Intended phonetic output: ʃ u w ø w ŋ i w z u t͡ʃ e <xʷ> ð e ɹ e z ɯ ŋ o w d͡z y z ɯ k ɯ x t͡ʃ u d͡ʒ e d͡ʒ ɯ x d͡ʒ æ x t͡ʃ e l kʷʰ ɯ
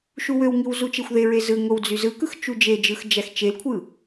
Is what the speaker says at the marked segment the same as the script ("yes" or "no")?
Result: yes